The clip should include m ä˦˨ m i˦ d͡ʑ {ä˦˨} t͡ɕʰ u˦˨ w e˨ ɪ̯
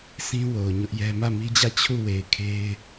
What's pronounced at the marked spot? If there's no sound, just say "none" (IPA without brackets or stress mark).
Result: ä˦˨